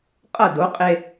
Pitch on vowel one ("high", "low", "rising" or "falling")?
falling